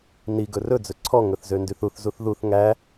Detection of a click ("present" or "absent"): present